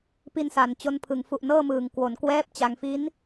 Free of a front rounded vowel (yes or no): yes